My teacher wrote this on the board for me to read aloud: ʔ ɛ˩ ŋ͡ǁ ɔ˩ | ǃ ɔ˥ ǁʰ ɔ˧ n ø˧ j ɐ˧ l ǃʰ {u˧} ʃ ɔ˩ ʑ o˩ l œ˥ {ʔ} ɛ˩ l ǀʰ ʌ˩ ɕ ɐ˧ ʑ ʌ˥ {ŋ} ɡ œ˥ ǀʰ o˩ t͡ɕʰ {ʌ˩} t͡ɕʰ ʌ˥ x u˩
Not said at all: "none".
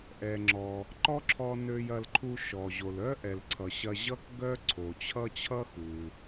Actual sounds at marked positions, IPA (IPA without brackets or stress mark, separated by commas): u˧, ʔ, k, ʌ˥